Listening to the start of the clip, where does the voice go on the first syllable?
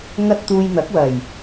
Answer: high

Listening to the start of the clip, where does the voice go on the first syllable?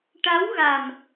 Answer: rising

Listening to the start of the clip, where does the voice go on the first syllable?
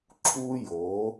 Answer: high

